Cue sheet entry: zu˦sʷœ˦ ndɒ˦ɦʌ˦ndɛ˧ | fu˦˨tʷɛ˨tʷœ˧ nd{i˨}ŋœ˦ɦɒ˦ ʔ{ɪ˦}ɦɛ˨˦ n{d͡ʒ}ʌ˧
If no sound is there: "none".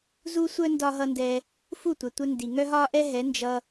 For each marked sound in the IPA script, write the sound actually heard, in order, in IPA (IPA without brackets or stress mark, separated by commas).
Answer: i˨, ɛ˦, d͡ʒ